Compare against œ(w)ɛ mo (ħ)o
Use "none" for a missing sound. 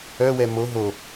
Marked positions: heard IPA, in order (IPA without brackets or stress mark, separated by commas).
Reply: w, ɦ